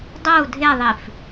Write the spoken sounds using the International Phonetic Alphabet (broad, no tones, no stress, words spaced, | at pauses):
dˤou̯ dʱeðˤif